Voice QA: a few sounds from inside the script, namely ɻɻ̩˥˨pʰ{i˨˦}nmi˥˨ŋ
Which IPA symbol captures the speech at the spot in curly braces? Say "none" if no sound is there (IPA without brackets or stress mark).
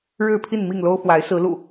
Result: i˥˨